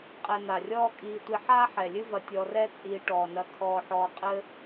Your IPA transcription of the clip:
qʼ ɛ˨ n̪ a˩ rʲ ɔː˦ kʼ iː˨ tʷ i˨ ħ aː˥ ħ ɛ˩ lʲ ɨ˦ v ɐ˨ tʲ ɔ˨ r ɛ˦ t͡sʼ iː˨ ʈ ɔː˩ n ɐ˨ kʰ ɔː˨ ħ ɔː˨ qʼ ɘ˦

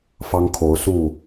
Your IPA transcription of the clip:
f ɑ˦ ŋ kʰ o˨˦ ʊ̯ s u˥˨

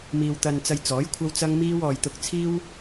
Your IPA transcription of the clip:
m iː˧ w t̪ ɐ˧ n t͡s ɐ˧ j t͡s ɔː˨˥ j kʷʰ ɐ˥ w t͡s ɐ˥ ŋ m iː˥ w ɔː˧ j t̪ ʊ˧ k̚ t͡sʰ iː˥ w

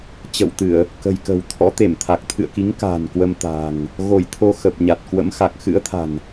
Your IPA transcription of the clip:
t͡ɕ ə̰˧˨ w t̪ ɨ˧˩˨ ə̯ | k ə̤˨˩ j k ə̤˨˩ w t̪ʰ ɔ̰˧˥ t̪ e˧˩ m t̪ʰ a˨˩ k̚ t̪ʰ ɨ̰˧˨ ə̯ k i˨˦ ŋ k a̤ː˨˩ n k w ə˧ m t̪ a̤ː˨˩ ŋ | ɣ o˧˩ j t̪ʰ o˧ x ə˨˩ p̚ ɲ a˨˩ t̚ k w ə̰˧˥ m x a˨˩ k̚ x ɨ̰˧˥ ə̯ t̪ʰ a̤˨˩ n

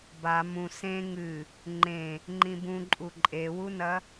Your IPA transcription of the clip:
b a m ũ s ẽ ŋ ɨ | ŋ͡ǃ ẽ | ŋ͡ǃ ĩ b ũ ǃʼ u ǃʼ e w u n ɐ

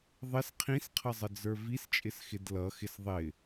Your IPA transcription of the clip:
ðˤ ɪ s qʰ ĩ s qʰ ʌ zˤ ə d͡z ə˞ v i s t͡ʃʼ ɪ s x ɪ d l ʌ x ɪ s ðˤ ɪ

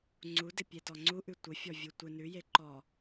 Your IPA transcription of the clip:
ŋ͡ǀ u d ɪ pʲ e t ɔ ŋ͡ǀ u ʔ ʉ tʷ ɪ fʲ ɔ vʲ u tʷ ɪ n ʉ j e ǃ ɔ

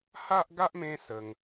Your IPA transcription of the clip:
h a˦ ʔ ɡ a˦ ʔ m ẽ˦ s ə˧ ŋ

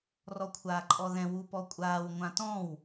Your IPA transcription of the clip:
r ɔ kʷʰ aː ǃʼ ɔ ð ɛ̃ w u p ɔ kʷʼ aː w ŋʷ ã t ɔ̃ w

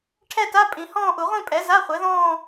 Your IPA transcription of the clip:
ʈʰ ɛ˥˧ t a˧˥˧ pʼ ĩ˨˩˦ h ɔ̃ː˥˧ ʔ u˨˩˦ ʁʷ ĩ˥˧ pʼ ɛ˩˥ z a˧˥˧ χʷ ɛ˩˥ ð ɔ̃ː˥˧

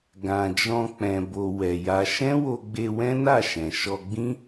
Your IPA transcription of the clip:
ɡ ã˨ d͡ʒ ɔ̃˧ k͡p ɛ̃˨ b o˨ w ɛ˨ j a˧ ʃ ɛ̃˦ w o˧ ɡ͡b e˧ w ɛ̃˦ n a˦˨ ʃ ɛ̃˨ ʃ ɔ˧ ɡ͡b ĩ˦

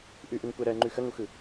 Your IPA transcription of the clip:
ʔ ʉ ʔ ɯ ŋ kʷ ɜ ɾ ɜ ŋ͡ǃ ʉ x ə ŋ u x ɯ

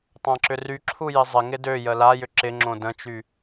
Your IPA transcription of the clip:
tˤ ã ǁ ʏ r y ǁʰ u j ɪ zˤ ɪ ŋ ɪ d ø j ə l a j ʏ ǁ ɪ ŋ͡ǁ õ d ə̃ t͡ʃ y

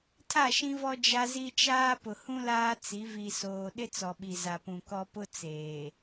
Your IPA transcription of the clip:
tʰ a˦˨ ʃ ĩ˦ v ɔ˦ d͡ʒ a˦ z i˦ t͡ʃ aː˦ p ʊ˨ h ũ˦ l aː˦ t͡s i˨˦ v i˨ s oː˨ ɗ ɪ˦ t͡s ɔ˨ ɓ i˨ z a˨ p ũ˨ k ɔ˦ p ʊ˦ t͡s eː˨

